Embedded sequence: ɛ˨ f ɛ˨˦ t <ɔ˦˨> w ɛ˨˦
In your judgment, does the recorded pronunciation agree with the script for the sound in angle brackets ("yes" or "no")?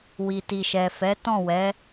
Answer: no